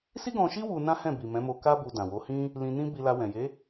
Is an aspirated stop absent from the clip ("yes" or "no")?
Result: yes